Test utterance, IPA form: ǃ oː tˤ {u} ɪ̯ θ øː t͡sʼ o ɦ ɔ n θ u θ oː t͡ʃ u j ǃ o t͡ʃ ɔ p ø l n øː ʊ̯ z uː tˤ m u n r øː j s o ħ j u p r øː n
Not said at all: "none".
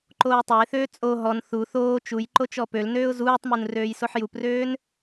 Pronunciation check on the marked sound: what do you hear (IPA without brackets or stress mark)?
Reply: o